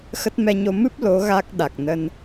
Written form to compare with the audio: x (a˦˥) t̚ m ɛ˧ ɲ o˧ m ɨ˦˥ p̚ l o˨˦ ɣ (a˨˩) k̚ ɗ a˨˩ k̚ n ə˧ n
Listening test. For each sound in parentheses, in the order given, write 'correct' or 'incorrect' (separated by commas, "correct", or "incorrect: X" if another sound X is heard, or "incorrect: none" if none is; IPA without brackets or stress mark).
incorrect: ə˦˥, incorrect: a˦˥